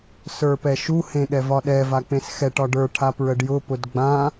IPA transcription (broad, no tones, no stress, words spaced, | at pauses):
sə˞pɛʃu hẽɠɛvɒɗɛ vak͡pẽsxɛʈ ɒɖə˞ ʈʰapɹəɖjʊ pʊdɡ͡bã